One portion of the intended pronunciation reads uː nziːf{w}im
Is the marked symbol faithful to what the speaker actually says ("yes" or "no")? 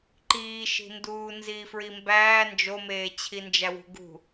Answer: no